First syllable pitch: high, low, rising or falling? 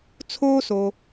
high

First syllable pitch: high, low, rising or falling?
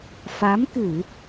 rising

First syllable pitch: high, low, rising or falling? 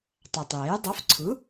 low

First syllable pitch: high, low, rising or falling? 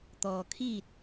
low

